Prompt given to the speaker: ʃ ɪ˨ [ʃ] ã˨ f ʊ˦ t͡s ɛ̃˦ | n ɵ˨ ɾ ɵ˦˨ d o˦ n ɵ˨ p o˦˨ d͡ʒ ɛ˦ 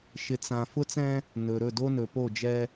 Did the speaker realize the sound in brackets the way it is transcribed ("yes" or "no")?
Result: no